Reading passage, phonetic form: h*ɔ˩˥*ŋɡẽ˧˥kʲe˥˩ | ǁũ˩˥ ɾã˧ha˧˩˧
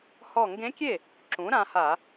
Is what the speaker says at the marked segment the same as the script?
no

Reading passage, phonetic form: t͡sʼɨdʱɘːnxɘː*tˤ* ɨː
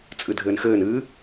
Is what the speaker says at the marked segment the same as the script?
no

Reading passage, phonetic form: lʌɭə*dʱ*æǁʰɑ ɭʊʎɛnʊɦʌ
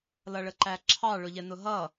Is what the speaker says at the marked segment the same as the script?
no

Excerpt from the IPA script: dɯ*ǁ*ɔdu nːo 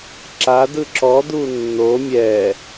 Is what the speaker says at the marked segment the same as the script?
yes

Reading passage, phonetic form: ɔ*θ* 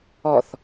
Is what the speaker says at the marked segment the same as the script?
yes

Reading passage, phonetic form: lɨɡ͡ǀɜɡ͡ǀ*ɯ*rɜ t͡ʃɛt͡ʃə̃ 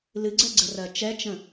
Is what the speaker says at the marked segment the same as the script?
no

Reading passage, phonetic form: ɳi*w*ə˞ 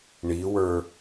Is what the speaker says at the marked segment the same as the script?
yes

